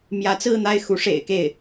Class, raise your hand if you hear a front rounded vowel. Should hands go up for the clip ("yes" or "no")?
no